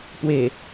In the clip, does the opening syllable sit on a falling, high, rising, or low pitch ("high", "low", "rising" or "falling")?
low